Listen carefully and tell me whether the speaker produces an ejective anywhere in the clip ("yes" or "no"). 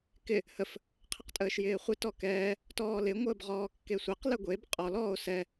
yes